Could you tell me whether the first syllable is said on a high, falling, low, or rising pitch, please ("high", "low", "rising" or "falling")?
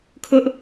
high